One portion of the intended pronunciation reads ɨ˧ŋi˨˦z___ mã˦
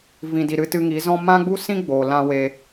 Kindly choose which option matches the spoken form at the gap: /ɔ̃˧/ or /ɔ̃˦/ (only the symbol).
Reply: ɔ̃˦